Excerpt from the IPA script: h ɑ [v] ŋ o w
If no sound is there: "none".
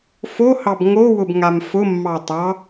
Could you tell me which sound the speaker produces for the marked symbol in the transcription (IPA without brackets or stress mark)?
b